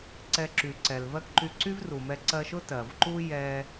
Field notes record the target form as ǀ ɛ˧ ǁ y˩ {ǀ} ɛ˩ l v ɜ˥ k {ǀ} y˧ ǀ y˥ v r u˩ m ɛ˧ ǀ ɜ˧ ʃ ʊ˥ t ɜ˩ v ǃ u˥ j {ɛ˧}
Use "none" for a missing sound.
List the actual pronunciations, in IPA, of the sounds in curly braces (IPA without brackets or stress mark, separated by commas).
ǀ, ǃ, ɛ˧